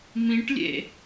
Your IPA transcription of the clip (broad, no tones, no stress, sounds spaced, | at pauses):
m ĩ ʈ lʲ ḛ